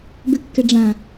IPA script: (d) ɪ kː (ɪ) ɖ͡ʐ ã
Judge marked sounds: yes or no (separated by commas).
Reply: no, yes